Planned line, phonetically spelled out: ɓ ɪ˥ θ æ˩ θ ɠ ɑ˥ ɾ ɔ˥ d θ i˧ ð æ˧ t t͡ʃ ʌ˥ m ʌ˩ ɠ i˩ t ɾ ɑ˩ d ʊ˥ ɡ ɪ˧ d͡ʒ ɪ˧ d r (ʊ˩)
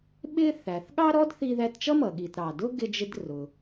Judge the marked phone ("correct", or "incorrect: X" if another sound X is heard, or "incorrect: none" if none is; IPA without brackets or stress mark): correct